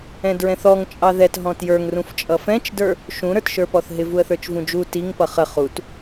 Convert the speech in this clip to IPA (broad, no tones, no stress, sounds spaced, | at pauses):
ɛ̃ d ɹ ɛ̃ θ ɔ ŋ t͡ʃʼ ɑ ð ɛ t ɦ ɔ̃ t j ə˞ ŋ r ũ f t͡ʃʼ ʌ f ɛ̃ t͡ʃ d ə˞ | ʃ ũ ɾ ə˞ t ʃ ə˞ p ɔ θ ɦ ɪ v u ə̯ θ ə˞ t͡ʃ v ũ d͡ʒ u t i ŋ p ʌ χ ə χ u t